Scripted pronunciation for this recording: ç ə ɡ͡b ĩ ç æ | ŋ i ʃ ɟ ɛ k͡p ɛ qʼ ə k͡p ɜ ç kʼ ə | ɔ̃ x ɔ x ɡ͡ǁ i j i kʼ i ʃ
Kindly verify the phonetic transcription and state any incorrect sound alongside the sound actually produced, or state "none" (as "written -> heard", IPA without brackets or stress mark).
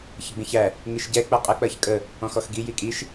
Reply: ɡ͡ǁ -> ɡ